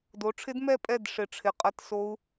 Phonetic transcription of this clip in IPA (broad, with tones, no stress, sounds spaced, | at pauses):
d o˨˦ ʈ͡ʂʰ ɪ˦˥ d m ɛ˥˨ pʼ ɛ˥˨ d ʂ ɪ˧˩ ʈ͡ʂʰ ɪ˧˩ qʼ ɐ˥˨ t s o˦˥ u̯